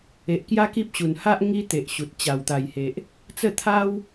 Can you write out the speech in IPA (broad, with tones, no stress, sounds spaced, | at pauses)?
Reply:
e˨ ʔ k j a˦ k i˦ p̚ ɕ u˨˩ n h a˦ ʔ ŋ i˧ t̪ e˨ ʔ ɕ u˨ t̚ t͡ɕ a˨˩ w t̪ a˨˩ j h e˨ ʔ | t͡s ə˥˧ t̪ʰ a˦ w